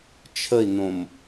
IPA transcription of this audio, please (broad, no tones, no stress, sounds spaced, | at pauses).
t͡ʃʰ ə i̯ n õ m